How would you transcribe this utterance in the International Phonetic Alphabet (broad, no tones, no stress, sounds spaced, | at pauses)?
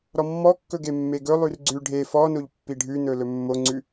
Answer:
ɾ ɔ mː ɔ kː ɵ ɡ e mː e ɡ ɵ lˠ ʉ r ɡ͡ǀ ʉ ɖʱ e f ɔ n o ʎ pː i ɖʱ ʉ n ɵ l ɵ mː o ŋ͡ǀ ʉ